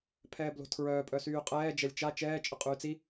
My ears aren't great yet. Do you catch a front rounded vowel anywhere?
yes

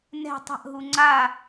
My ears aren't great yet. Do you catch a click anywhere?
yes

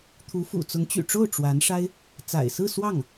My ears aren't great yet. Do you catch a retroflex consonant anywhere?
yes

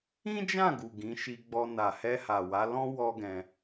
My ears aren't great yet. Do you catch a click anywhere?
no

